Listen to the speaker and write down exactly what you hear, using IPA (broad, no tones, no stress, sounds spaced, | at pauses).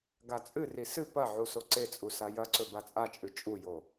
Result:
ɡ a t͡sʼ ɨ r i s ɨ p ɐ ʕ u s o ǀ e t͡sʼ u s a j ɐ ǀ ɵ b a t͡sʼ a t͡ʃʼ ʉ t͡ʃʼ u j o